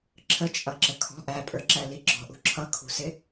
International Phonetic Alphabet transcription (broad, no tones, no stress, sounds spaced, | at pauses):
ǁʰ ə t͡ʃʼ ʌ ǁ ə kʰ ɔ̤ ʔ æ pʼ ə˞ ǁ æ l i ɡ͡ǁ ɔ̤ ʔ ṳ ǁʰ ʌ kʰ ṳ s ɪ